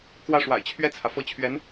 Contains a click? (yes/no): no